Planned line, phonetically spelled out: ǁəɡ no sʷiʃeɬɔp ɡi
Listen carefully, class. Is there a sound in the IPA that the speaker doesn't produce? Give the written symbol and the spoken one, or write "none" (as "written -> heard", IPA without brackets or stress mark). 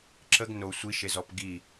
ɬ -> z